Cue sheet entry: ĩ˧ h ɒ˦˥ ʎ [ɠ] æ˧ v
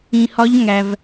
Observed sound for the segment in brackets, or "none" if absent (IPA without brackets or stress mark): ŋ